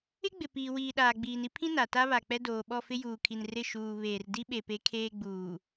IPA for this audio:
ɪ˦ ɡ͡b ɪ˨ p iː˨ w iː˨ ɗ aː˨ ɡ͡b iː˨ n i˦ pʰ ĩ˦ n a˨ t a˦ β a˨ k͡p ɛ˦ d oː˨ ɓ ɔ˦˨ f ɪ˦ j uː˨ kʰ i˨ n r ɪ˦˨ ʃ uː˨ β eː˨ r d i˦ ɓ e˨ p e˨˦ kʰ eː˦ ɡ͡b uː˨

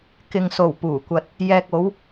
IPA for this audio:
k ɪ˨ ŋ s o˨˩ w p uː˨˩ kʷ ɐ˧ t̚ | j ɛː˨ k̚ o˨˧ w

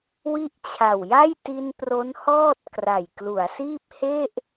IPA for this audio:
w i˦˥ ʔ t͡ɕʰ a˨˩ w j a˥˩ j t i˧ n p r o˦˥ n h ɔː˥˩ t̚ k r a˨˩ j k l u˩˦ a̯ s iː˥˩ p̚ h e˥˩ ʔ

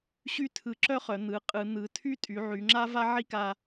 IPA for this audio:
ɕ y˥ tʰ ɯ˧˩ ǁ œ˥ χ œ˩˧ n̪ ɯ˩˧ qʼ ɯ˩˧ n̪ ɯ˩˧ tʰ y˥ tʼ y˩˧ ʕ y˩˧ ŋ͡ǁ a˥ v a˥ ʕ i˥ k a˧

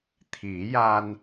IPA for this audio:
t̪ʰ i˨˩˦ j a˧ n

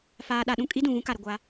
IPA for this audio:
f aː˨ ɗ a˨ ɗ ũ˦ kʼ i˦ d ũ˨ ɣ ũ˦ k a˨ ɾ ɪ˨ ɡʷ a˦

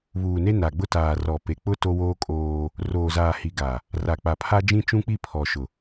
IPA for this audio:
β uː˨ n e˦ n a˨ ɡ͡b ʊ˦ t aː˨ r ɔ˨ p e˨ k͡p ʊ˦ t o˦ w oː˦ kʼ oː˦ | r oː˨ z aː˨ h i˨ ɡ a˨ | r a˨ k͡p a˨ pʰ a˦ d͡ʒ ĩ˦ t͡ʃ ũ˦ k͡p i˦˨ pʰ ɔ˨ ʃ ʊ˨

